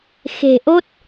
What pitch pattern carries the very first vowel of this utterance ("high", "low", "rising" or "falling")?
low